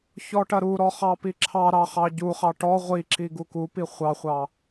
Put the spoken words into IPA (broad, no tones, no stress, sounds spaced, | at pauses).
ç ɔ ʈ ɐ ɾ u ɾ ɔ χ ɑ p i ǁʰ ɑ ɾ ɑ χ ɑ ɟ u χ ɑ ʈ ɔ ʁʷ i ǁ i ɡ u k u p i χʷ ɑ χʷ ɑ